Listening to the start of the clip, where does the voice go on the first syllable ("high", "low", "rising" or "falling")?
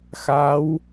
rising